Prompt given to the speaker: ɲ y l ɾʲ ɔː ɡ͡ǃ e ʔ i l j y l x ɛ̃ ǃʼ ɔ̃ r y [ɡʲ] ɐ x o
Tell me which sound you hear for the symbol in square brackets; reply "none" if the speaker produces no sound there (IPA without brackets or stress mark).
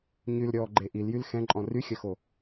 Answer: xʲ